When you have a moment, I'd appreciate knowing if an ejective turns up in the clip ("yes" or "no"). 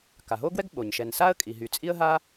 yes